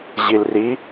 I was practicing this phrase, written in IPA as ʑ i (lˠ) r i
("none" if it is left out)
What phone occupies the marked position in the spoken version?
l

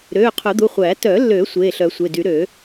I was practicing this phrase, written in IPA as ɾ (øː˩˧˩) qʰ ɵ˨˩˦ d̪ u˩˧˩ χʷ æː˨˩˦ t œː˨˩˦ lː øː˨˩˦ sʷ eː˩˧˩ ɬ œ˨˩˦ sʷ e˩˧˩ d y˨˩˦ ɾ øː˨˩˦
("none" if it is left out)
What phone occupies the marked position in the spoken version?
øː˩˧˩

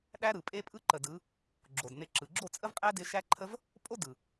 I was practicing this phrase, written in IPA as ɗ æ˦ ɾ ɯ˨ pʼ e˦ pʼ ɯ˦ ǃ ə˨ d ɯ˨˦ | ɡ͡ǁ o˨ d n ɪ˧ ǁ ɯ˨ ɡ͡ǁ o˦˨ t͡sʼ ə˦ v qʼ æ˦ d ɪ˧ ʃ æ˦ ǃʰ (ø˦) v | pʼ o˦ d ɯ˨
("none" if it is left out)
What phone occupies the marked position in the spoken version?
ə˦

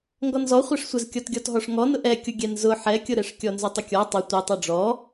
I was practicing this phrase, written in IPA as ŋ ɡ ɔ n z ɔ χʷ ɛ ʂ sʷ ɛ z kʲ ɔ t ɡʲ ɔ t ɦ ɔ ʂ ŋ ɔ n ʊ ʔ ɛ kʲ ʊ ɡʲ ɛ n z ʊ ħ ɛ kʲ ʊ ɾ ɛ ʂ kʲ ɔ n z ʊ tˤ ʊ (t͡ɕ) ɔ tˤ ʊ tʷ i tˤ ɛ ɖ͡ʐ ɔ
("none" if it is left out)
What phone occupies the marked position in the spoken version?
kʲ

